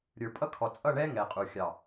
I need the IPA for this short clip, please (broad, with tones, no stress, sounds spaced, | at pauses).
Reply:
ɾʲ ə˞˨ pʼ ʌ˦ kʰ ɔ˨ t͡sʼ ʌ˦˨ ɳ ɛ˦ ŋ ɛ˨ qʼ u˨ xʲ ɑ˨